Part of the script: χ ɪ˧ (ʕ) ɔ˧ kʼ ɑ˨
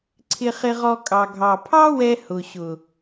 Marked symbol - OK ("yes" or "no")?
no